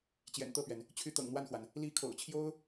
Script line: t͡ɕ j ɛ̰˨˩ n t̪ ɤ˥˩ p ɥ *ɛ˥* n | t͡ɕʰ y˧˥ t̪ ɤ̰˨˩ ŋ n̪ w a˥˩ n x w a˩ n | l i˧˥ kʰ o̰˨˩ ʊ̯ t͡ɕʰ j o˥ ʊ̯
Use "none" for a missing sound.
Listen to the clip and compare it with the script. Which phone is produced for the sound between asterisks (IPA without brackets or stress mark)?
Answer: ɛ˩